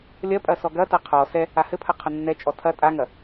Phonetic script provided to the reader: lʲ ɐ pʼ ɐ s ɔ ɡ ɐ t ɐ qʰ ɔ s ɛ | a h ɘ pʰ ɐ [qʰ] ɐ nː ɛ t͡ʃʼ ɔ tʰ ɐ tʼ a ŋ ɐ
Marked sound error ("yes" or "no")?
no